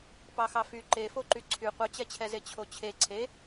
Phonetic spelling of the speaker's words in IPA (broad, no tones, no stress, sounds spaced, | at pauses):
p ɑ x ɑ f y ǃ e f o ǃ y ǀʰ y qʷ œ t͡ɕ ɛ t͡ɕʰ ɛ z e t͡ɕʰ o t͡ɕʰ e ǀʰ e